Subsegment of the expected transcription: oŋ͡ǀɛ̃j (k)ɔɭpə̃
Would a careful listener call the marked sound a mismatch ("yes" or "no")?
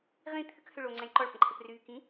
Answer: yes